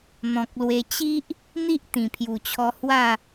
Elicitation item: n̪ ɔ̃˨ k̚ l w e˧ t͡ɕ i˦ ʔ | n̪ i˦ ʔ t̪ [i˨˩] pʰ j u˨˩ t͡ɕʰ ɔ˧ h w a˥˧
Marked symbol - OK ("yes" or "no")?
no